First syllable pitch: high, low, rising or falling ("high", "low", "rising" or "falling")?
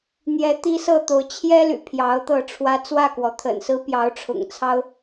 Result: rising